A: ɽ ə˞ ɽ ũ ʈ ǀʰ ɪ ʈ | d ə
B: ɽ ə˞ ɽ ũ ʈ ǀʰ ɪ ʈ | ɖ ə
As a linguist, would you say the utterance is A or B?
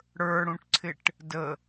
A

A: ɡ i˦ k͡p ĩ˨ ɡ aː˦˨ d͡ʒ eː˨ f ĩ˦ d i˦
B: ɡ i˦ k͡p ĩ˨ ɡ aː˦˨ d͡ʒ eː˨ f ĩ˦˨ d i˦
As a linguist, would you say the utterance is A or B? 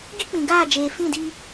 B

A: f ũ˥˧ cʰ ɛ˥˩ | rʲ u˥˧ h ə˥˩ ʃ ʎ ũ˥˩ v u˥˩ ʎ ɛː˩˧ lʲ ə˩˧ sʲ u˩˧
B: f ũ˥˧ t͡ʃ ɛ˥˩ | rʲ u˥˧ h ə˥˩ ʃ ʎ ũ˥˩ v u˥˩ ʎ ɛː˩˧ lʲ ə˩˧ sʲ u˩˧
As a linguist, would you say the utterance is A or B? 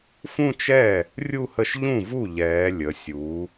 B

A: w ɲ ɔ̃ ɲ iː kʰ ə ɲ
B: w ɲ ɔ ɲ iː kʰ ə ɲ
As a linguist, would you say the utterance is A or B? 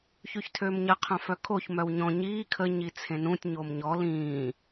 A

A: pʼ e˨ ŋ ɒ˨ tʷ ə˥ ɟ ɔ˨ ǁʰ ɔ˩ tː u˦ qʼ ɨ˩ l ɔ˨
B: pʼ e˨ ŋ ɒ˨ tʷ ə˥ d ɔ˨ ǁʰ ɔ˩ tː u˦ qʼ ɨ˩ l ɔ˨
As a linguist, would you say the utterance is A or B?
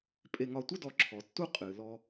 B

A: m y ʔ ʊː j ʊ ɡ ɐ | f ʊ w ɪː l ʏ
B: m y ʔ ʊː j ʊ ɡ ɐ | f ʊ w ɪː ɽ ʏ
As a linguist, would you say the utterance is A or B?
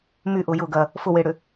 B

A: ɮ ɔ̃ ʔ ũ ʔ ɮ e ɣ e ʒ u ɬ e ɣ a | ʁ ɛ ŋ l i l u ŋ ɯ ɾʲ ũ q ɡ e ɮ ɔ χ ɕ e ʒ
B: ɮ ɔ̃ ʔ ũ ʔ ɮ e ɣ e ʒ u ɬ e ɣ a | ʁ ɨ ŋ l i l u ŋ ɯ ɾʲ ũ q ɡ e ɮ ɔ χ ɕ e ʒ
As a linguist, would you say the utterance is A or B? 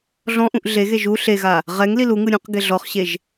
A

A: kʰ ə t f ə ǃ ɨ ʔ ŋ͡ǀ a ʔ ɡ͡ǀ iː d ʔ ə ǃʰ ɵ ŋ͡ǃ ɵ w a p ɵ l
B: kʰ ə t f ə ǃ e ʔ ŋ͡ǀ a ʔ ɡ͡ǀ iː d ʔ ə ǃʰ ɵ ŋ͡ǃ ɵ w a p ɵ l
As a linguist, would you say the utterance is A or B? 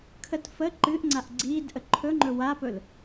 A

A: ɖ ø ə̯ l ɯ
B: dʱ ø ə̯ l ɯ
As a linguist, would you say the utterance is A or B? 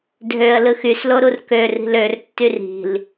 B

